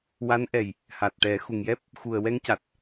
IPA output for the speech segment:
w a˧˥ n ʔ ɛ˨˩ j | h a˨˩ t̚ ʈ ɛ˨˩˦ x u˨˩ ŋ j ɛ˦˥ p̚ | x u˨˩ ə̯ w ɛ˧ ŋ c a˨˩ t̚

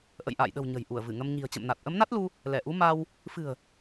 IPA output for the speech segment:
ʔ ə̰˧˨ j ʔ a̰ː˧˨ j ɗ ə̤˨˩ w ɲ ə̤˨˩ j ʔ u˧˩ ə̯ v ɨ˧˩ ŋ ə˧ m ɲ i̤˨˩ ə̯ t͡ɕ ə̰˧˨ m n a˨˩ t̚ ʔ ə˨˦ m n a˦˥ t̚ l u˧ | l ɛ˧˩ ʔ u˨˦ m a˧ w | f ɨ̤˨˩ ə̯

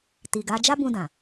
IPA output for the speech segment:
t i˨ ɡ a˨˦ d͡ʒ a˦ b ũ˧ d ã˨

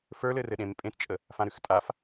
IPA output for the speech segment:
f ə˞ l ɘ r ɘ ɗ ẽ m pʼ ẽ t t͡ʃʼ ə | f ã ɾ ʉ x tʼ a f

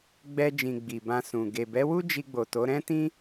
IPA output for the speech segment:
ɡ͡b ɛ˧ d͡ʒ ĩ˨ ɡ͡b i˨ b ã˧ s ũ˨ ɡ e˨ b ɛ˨˦ w u˦ d͡ʒ i˧ ɡ͡b o˨ t o˨˦ ɾ ɛ̃˦ t ĩ˦

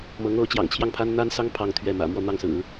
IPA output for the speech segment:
m ɤ˧˥ ŋ o˧˥ ʊ̯ t͡ɕ j ɑ̰˨˩ ŋ t͡ɕʰ j ɑ˥˩ ŋ pʰ a˥ n n̪ a˥ n s ɑ˥ ŋ pʰ ɑ˥˧ ŋ t̪ʰ ɥ ɛ˥˩ m ä̰˨˩ m w ɔ˥˧ n̪ ɑ˥˩ ŋ s ɹ̩˨˩˦

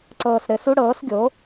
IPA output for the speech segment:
ǀ ɤː˧ s ɾ ɘ˧ s u˥ ɽ ɤː˩˥ s ɡʲ o˩˥

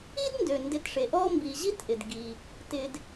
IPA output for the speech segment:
i˦ d n d ø˩ n d ɪ˨ t ʂ e˩ ʔ ɔ˦ m b i˨ ʑ i˦ t ʔ ɪ˩ d ɡ i˩ | t ɪ˨ d

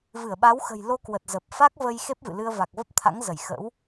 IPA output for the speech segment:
v ɨ˧˩ ə̯ ɓ a˨˦ w x ə̤˨˩ j l o˧ k w ə˨˩ t̚ z ə˨˩ p̚ f a˦˥ k̚ v ə˧ j x e˦˥ p̚ v ɨ̰˧˨ l ɨ˧ ə̯ v a˨˩ k̚ v ə˦˥ p̚ t̪ʰ a̰˧˥ ŋ z ə˧˩ j x ə̰˧˥ w

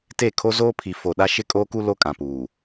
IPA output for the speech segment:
t e˦˨ kʰ o˦ z oː˦ pʰ i˨ f o˨ ɗ a˦ ʃ ɪ˦ kʼ oː˦ k u˦ l o˦ kʼ ã˨ p uː˨

